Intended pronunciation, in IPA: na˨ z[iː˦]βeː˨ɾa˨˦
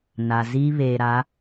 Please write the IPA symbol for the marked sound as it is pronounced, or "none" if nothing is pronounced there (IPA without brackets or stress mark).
iː˦